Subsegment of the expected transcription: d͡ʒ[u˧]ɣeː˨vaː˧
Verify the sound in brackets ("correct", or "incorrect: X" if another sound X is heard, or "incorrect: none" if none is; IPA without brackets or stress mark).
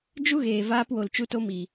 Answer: incorrect: u˦